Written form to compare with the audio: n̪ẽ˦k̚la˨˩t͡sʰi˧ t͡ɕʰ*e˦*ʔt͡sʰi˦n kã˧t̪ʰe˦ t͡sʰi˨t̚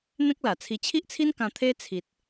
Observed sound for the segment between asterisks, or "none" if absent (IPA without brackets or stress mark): i˦